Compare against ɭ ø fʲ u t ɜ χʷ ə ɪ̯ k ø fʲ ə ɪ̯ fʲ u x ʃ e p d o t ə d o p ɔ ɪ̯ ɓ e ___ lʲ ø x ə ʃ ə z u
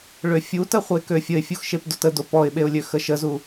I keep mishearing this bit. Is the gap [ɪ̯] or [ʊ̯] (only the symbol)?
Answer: ʊ̯